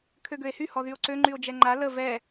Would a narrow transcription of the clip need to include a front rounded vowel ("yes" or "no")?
yes